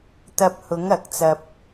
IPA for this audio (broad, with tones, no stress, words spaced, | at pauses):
t̪ɐ˧p̚hʊ˨˥ŋ ɐ˨˥k̚t͡sɐ˧p̚